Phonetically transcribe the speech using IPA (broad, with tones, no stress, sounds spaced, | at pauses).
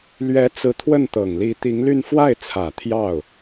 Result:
l ɥ ɛ˧˥ t͡s ɹ̩˧˥ t̪ʰ w ə˥˩ n t̪ ɤ˨˩ ŋ l i˧˥ t̪ i˧˥ ŋ l y˥˧ n f w a˥˩ ɪ̯ t͡sʰ ä˨˩ t̪ʰ j ɑ˥˩ ʊ̯